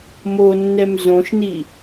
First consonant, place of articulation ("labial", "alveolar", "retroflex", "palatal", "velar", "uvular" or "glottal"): labial